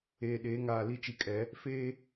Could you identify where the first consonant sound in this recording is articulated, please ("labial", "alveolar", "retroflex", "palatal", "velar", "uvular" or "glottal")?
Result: alveolar